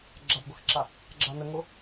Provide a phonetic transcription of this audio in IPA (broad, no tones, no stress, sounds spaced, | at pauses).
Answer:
ɡ͡ǁ a b ɡʷ a x ǁ a | ɡ͡ǁ a n ə ŋ o